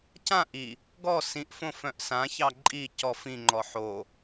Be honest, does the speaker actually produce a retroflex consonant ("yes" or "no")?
no